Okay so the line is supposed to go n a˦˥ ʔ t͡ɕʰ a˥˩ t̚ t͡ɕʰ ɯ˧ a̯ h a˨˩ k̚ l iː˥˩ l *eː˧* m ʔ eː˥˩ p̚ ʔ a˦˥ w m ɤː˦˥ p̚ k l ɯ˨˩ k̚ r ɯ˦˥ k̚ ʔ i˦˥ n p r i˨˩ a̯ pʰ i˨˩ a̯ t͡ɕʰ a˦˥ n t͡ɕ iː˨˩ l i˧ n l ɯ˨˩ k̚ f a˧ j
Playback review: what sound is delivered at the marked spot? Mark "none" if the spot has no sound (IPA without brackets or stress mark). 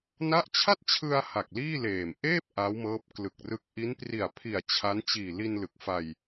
eː˨˩